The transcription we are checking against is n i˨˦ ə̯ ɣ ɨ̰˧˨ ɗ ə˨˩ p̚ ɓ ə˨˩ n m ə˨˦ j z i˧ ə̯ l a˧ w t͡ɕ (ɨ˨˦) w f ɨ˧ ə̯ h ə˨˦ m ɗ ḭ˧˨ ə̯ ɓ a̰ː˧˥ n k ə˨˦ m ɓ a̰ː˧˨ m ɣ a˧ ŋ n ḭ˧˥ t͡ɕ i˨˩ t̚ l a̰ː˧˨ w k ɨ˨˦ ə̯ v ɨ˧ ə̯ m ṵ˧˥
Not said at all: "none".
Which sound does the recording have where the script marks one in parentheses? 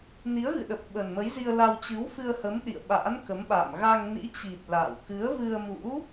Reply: ɨ˨˦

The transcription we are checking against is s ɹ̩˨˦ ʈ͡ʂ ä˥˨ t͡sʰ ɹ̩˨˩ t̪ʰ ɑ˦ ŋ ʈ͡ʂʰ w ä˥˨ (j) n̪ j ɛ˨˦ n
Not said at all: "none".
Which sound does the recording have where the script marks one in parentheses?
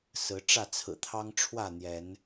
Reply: none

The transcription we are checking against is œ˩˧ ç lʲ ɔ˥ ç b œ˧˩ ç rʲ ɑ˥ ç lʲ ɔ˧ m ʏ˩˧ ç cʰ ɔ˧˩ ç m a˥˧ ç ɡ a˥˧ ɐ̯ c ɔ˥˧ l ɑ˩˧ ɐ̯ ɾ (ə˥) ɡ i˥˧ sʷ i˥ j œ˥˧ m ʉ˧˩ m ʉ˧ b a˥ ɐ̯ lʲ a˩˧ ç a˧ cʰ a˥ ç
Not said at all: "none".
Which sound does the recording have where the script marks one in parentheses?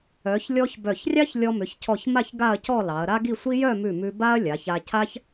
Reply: a˥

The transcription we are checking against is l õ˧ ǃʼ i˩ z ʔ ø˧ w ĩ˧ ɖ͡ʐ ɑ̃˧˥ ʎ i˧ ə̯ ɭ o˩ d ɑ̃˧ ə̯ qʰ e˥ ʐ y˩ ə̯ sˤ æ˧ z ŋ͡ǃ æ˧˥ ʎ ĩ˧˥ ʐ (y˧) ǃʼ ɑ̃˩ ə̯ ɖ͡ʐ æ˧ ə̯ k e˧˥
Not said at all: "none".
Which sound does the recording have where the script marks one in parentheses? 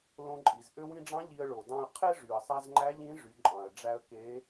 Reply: y˩˧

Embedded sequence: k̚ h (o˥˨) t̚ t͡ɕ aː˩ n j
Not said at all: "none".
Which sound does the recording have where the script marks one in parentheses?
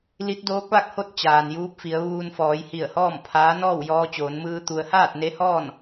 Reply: o˥˨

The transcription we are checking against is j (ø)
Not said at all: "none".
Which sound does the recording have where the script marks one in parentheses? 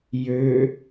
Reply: ø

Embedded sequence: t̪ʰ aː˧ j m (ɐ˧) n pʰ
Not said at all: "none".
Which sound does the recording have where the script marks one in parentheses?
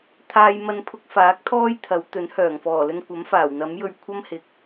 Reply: ɐ˧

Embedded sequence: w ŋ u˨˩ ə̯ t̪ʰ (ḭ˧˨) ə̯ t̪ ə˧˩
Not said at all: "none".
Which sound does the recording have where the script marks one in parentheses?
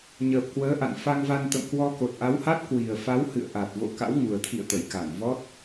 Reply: ḭ˧˨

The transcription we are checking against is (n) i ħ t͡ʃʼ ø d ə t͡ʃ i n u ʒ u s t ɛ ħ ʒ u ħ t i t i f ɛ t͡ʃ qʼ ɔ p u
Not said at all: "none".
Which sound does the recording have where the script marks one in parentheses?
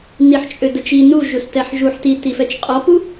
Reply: n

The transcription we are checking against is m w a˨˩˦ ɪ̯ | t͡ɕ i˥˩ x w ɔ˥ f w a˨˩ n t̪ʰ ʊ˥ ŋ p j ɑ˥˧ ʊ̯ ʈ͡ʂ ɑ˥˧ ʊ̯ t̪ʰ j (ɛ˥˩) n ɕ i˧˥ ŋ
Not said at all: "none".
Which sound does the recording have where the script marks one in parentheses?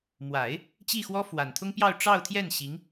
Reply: ɛ˥˩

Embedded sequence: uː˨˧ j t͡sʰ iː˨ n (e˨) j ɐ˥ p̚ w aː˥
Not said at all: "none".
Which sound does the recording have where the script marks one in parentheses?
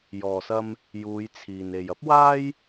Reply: e˨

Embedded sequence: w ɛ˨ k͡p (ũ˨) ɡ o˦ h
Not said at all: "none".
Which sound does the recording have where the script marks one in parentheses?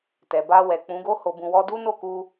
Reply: ũ˨˦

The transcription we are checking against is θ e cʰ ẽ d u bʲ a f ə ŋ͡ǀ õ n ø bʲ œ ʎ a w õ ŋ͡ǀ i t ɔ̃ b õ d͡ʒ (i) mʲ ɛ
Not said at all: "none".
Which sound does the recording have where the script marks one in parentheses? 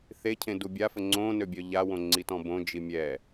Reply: i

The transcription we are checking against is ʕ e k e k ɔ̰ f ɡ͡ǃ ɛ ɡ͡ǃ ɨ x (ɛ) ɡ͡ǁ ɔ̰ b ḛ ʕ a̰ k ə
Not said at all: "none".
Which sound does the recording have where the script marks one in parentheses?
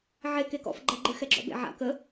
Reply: ɛ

